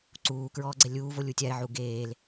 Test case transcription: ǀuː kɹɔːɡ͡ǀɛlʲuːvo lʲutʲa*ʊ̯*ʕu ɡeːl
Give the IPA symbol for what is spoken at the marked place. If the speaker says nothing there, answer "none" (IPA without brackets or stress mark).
ɪ̯